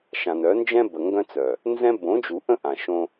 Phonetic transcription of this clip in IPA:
ʃ ã˨ n œ˨˦ n d͡ʒ ɛ̃˦ b ə˨ ŋ ɡ œ̃˦ t͡s œ˨ | n z ɛ̃˦ b õ˨˦ d͡ʒ u˨ ʔ ə̃˦ ʔ ã˨ ʃ õ˦

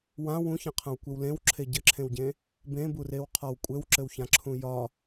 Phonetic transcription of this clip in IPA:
w ã w ũ ç ã qʰ ã w kʷ ɘ w l ẽ w ǁʰ e ɟ ɘ ǁʰ ẽ w ɟ ẽ | b ẽ b u r e w qʰ ɒ w kʷʼ ɘ w ǁ ɘ w ç ã ǁʰ ũ j ɒ

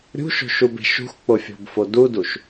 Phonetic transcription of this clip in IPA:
ɾʲ ṳ ʃ o̤ ʃ u b e̤ ʃ ṳ x k͡p o fʲ o̤ b f o d u d u ʃ

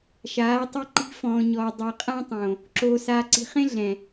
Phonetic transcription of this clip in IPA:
ʃ aː˨˦ tˤ e˦ ǃ i̤˦ f ɔ̃ː˨ ɲ ɔː˨ dˤ ɤ˨ qʼ ã˦ tˤ õ˨ | ǁ oː˨ s aː˨ ǀ i̤˨ χ ẽ˦ ɮ ɛ̃˨

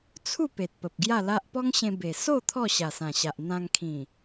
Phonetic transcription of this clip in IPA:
t͡sʰ u˥˧ p e˨ t̚ p ə˨ p̚ ɡ j a˥˧ l a˦ ʔ p ɔ˦ ŋ ɕ ẽ˧ b e˨˩ s o˥˧ t̪ʰ ɔ˥˧ ɕ a˨˩ s ã˨˩ ɕ a˨ ʔ n̪ ã˧ ŋ kʰ ĩ˨˩

